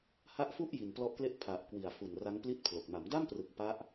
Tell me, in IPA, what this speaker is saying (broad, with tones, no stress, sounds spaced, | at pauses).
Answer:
h a˦˥ ʔ f u˥˩ ʔ j i˨˩ n p l ɔ˦˥ ʔ k l e˥˩ ʔ pʰ a˨˩ ʔ k w i˨˩ a̯ f u˨˩ n r a˦˥ ŋ p l i˥˩ t̚ pʰ l o˨˩ k̚ m a˩˦ m d a˥˩ m p r ɯ˨˩ k̚ p a˦˥ ʔ